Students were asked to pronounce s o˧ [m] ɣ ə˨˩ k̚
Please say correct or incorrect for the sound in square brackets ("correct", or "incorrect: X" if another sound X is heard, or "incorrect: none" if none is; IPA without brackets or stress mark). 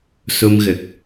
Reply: correct